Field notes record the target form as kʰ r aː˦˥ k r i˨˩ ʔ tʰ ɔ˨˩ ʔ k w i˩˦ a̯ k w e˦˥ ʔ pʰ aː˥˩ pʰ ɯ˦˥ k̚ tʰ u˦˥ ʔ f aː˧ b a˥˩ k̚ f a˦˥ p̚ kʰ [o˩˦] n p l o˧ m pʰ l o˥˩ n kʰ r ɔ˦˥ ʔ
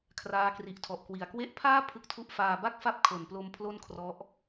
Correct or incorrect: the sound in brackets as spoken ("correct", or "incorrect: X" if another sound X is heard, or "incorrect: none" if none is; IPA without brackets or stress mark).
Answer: correct